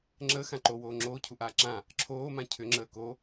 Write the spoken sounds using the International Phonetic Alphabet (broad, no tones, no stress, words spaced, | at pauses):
ŋ͡ǁəːxã ǃowoː ŋ͡ǁoːcʰuʔaː ǁã | ǁʰoːmã cʰʏŋ͡ǁəː ko